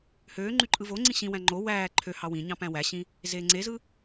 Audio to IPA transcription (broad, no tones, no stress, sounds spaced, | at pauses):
h øː ŋ͡ǃ y ǃʼ ɯ v o ŋ͡ǀ ĩ ɕ ĩ w æ̃ ŋ͡ǃ o w æː ǃʰ ø h ɑ w ĩ ɲ ɑ̃ p æ̃ w æ ɕ ĩ | z eː ŋ͡ǀ e z ɯ